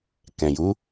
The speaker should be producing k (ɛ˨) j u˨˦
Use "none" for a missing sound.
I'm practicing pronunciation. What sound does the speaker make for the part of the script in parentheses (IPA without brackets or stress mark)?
ɛ̃˨